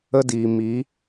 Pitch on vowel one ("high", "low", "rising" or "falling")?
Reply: high